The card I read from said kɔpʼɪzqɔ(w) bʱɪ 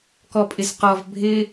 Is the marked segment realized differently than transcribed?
yes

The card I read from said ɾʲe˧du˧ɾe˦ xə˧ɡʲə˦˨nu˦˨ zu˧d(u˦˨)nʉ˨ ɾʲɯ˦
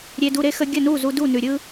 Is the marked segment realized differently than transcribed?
no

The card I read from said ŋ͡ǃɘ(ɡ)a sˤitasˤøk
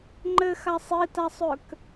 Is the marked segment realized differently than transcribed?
yes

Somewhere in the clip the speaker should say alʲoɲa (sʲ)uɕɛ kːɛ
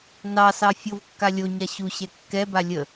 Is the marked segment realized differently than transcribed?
yes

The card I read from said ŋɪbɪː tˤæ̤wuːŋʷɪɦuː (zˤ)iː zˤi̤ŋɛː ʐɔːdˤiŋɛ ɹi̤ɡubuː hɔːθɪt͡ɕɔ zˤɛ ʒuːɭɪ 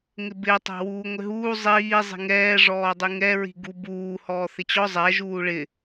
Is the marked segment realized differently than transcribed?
no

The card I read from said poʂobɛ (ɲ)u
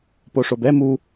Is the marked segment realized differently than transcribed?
yes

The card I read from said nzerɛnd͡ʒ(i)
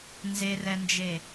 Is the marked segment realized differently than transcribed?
yes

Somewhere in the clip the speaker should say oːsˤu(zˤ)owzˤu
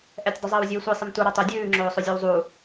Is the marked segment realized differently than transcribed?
yes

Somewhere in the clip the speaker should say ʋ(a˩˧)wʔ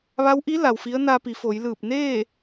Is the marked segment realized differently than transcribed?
yes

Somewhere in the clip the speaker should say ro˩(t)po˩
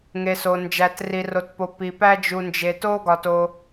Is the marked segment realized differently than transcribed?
no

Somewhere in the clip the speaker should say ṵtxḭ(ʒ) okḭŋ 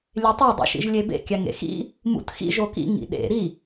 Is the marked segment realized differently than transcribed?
no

